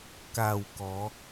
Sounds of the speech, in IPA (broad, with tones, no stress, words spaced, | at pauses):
ka˨˩w kɔ˨˦